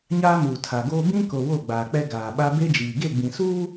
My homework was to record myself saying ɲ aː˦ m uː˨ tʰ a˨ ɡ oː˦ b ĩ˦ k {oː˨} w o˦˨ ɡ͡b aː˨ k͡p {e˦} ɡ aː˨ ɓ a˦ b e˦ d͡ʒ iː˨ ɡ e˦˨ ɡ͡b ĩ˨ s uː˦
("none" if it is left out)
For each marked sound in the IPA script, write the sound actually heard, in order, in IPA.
o˨, ɛ˦

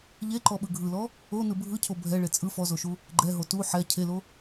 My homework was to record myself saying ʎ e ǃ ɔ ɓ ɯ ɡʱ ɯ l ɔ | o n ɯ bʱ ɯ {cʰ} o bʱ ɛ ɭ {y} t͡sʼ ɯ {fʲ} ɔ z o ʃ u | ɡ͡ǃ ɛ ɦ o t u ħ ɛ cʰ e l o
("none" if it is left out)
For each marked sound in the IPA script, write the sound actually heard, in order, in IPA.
cʰ, e, f

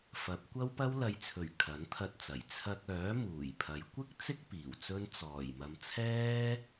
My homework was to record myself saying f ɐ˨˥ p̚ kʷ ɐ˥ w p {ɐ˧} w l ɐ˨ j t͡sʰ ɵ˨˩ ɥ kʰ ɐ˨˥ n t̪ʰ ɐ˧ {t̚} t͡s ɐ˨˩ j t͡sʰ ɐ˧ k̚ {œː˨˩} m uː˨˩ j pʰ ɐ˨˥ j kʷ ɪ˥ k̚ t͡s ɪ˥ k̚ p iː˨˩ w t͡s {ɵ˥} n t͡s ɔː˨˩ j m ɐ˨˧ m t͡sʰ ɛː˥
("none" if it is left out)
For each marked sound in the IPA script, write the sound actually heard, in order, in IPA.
ɐ˥, t̚, œː˨˥, ɵ˥

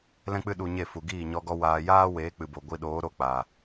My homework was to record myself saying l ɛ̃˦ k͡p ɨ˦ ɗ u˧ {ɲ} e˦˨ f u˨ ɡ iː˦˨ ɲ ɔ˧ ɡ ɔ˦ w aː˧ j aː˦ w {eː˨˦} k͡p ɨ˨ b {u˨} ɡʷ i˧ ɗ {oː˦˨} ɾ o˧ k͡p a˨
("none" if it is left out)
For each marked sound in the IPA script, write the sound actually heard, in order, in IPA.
ɲ, eː˨˦, o˨, oː˨˦

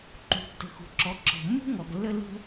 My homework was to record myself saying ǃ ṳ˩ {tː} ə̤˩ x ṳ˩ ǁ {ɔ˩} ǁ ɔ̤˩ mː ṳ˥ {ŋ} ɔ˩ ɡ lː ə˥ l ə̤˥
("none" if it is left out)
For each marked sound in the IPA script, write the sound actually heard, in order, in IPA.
tː, ɔ˩, ŋ

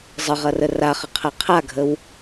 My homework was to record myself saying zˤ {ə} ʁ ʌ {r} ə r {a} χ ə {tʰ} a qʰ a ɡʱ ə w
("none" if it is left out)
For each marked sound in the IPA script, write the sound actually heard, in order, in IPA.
ə, r, a, qʰ

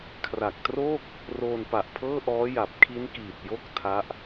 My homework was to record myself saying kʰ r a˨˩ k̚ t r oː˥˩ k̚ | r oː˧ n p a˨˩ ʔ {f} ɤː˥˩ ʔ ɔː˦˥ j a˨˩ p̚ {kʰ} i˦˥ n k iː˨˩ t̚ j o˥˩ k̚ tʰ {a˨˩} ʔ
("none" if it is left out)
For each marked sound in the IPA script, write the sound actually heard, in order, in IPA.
pʰ, kʰ, a˦˥

